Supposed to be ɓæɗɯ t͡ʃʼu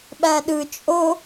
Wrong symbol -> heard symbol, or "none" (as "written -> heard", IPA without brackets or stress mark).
u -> o